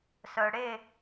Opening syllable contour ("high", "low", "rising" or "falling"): low